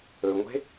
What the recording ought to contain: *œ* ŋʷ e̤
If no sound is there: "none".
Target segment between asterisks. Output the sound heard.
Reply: ɵ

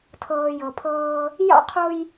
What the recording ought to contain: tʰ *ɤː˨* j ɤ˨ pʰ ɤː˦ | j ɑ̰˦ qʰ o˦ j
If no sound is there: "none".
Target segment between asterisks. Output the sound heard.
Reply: ɤː˨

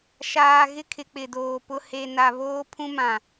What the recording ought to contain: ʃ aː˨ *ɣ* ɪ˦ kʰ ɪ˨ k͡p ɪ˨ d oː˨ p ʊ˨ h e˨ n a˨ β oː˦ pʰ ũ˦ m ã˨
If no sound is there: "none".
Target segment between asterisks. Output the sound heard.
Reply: ɣ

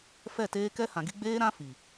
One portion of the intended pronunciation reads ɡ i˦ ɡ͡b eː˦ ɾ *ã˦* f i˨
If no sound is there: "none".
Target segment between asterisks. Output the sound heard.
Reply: ã˦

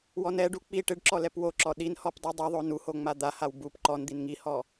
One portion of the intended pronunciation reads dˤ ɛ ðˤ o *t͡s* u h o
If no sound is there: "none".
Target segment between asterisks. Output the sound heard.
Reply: n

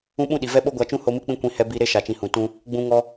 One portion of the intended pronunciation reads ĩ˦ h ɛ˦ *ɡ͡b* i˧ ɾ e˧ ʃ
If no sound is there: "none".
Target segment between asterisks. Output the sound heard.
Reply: b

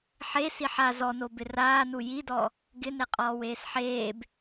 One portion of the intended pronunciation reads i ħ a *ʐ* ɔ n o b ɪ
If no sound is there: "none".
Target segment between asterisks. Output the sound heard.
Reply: z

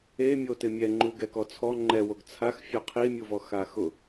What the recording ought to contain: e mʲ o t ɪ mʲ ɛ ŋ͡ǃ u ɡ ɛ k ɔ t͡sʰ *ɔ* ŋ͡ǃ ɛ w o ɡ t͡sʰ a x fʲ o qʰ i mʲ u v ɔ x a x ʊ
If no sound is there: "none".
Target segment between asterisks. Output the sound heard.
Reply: ɔ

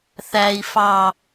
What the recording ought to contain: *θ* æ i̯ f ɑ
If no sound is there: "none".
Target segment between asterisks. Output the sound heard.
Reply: θ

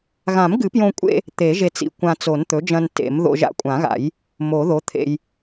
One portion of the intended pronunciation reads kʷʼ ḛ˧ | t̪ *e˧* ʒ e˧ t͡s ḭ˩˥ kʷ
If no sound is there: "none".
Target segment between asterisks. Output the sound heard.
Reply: e˨˩˦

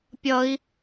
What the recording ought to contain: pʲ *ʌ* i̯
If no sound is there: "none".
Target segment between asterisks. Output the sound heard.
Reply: ʌ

